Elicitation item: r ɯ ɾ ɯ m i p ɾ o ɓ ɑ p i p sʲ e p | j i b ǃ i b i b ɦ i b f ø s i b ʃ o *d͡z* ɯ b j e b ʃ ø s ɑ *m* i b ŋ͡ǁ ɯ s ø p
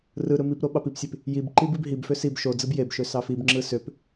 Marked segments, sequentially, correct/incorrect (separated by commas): correct, incorrect